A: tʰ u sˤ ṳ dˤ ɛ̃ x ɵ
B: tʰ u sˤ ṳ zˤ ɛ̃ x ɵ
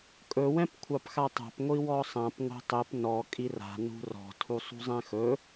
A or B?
B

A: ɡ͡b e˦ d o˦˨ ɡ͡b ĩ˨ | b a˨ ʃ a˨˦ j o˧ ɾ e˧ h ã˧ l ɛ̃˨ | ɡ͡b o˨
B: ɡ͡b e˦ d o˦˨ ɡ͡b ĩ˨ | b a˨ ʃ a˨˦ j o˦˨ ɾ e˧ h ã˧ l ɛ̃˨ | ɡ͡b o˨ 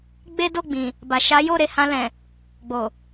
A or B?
B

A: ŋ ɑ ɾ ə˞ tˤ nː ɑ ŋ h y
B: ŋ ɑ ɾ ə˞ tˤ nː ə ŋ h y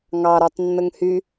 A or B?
B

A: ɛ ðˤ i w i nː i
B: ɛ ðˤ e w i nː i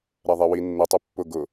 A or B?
B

